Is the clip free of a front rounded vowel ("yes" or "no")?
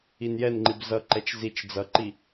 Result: yes